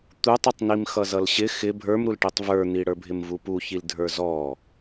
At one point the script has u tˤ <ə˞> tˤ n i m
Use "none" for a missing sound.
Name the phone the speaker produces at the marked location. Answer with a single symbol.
ʌ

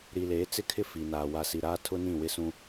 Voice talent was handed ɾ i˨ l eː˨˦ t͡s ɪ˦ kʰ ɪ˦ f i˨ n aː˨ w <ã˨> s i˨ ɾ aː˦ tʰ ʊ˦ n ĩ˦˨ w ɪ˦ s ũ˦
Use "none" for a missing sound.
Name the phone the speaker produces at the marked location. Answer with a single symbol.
a˨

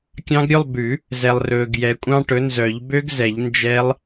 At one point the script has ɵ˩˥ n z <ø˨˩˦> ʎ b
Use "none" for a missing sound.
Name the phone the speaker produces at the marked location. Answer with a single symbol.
œ˨˩˦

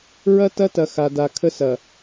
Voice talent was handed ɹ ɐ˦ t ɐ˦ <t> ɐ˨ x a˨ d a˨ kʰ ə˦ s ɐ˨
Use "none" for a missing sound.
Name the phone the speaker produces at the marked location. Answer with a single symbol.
t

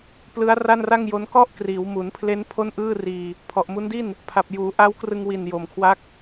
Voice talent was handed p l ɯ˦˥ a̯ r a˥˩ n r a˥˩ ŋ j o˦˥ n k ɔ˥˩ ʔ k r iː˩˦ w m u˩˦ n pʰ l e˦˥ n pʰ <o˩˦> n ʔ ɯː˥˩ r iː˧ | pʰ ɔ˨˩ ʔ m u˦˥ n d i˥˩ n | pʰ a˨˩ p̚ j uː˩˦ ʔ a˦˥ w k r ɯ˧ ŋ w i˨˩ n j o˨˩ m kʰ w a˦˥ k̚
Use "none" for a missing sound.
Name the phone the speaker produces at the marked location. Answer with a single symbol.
o˥˩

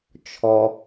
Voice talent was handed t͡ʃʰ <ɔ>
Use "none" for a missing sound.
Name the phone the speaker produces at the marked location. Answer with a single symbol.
ɔ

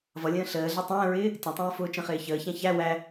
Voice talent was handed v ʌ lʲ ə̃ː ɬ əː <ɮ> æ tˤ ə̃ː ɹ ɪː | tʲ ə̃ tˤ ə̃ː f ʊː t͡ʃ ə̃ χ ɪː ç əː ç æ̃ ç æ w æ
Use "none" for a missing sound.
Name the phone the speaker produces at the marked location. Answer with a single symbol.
ɮ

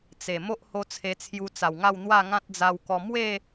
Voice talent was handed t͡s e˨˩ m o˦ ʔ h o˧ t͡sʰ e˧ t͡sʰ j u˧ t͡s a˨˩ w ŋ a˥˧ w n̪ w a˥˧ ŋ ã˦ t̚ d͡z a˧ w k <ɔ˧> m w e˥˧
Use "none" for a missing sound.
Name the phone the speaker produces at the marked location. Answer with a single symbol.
ɔ˧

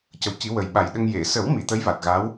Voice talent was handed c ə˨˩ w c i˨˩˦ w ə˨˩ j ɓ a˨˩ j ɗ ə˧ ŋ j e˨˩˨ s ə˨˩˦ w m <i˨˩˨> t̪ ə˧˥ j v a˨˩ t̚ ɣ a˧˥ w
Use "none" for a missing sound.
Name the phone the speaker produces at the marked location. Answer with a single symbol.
i˨˩˨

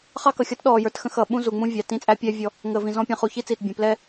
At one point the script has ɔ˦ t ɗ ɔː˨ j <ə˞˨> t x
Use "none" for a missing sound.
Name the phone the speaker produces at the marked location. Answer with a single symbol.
ə˞˨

